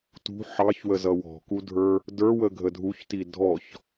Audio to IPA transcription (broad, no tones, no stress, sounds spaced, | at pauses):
t ṳ ħ ɑ ç w ə z ʌ w ɔ̤ k u dʱ ə˞ | d ə˞ w ə ɡʱ ə dʱ u ç t i dʱ ɔ ç